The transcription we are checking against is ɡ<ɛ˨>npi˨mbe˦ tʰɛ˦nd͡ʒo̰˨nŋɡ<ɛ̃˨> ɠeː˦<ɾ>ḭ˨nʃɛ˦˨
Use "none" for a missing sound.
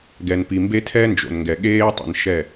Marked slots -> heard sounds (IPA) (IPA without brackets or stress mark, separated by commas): ɛ˨, ɛ˨, tˤ